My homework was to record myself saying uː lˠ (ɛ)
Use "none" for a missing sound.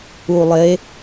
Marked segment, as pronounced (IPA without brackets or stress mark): e